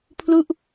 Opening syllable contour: falling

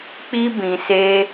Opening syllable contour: high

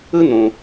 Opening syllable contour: high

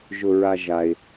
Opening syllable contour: low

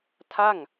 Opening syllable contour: falling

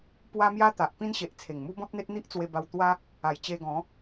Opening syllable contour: high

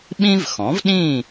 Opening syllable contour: high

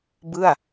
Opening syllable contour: falling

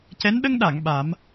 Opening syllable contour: rising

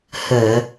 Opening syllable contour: low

